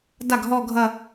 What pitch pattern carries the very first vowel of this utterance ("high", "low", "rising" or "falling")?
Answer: falling